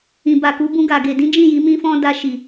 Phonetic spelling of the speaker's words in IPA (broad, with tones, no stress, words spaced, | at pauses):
ĩ˨ba˨ku˨˦ bũ˧ɡa˨ ɡe˨dĩ˨˦ d͡ʒĩ˦˨ ji˨˦mĩ˦fɔ̃˦ da˧ ʃi˨